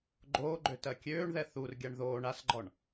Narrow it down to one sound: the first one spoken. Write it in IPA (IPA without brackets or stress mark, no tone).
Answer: ɡ͡ǃ